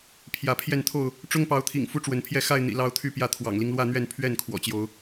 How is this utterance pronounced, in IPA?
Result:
pʰjä˨˦pʰjɛ˥˨nt̪ʰo˥˨ʊ̯ | ʈ͡ʂʊ˦ŋpɑ˨˦ʊ̯t̪ʰḭ˨˩ŋ fu˦ʈ͡ʂwə˨˦npʰjɛ˥˨ xa˥˨ɪ̯n̪ḭ˨˩ lɑ˦ʊ̯t̪ʰy˥˨pjä˥˨ t̪ʰwɑ̰˨˩ŋli˦ŋlwä˥˨n̪ɥɛ˥˨n pʰɥɛ˥˨n kʰwɔ̰˨˩t͡ɕjo˨˦ʊ̯

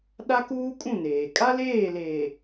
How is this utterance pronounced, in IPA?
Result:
ɗa˦kuː˦kʼũ˦˨neː˨ kʼa˦leː˦˨leː˨

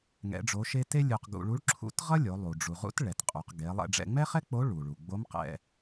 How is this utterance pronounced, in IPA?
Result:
ŋɛ̰˧˥ɖ͡ʐo˧˥ʃe˥ te˥lʲu˧qɡṵ˧ ɭu˧˥ɭǁʰṵ˧˥tʁʌ˥lʲo˩˧ lˠu˩ ɖ͡ʐu˩ʁṵ˧˥t ɭɛ˩˧tqʼu˩˧q ɡe˩˧lˠɛ̰˧ɖ͡ʐɛ̰˧ ŋ͡mɛ˥χɛ˥k͡po˧˥ ɭu˩ɭu˩ɡ͡bo˧˥mqɛ̰˧

